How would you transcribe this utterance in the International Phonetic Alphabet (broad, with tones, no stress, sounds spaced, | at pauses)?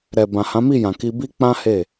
ɾ ɛ˨ b ã˨ h ã˨˦ m i˦˨ j ã˨ k i˧ b i˦ k͡p ã˦ h e˦˨